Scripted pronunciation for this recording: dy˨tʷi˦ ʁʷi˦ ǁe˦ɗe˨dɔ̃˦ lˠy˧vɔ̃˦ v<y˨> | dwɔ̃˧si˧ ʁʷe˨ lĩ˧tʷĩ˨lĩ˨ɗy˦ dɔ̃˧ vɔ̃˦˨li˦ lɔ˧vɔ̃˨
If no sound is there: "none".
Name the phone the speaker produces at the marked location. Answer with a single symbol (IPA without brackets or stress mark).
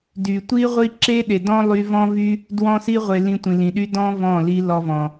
y˦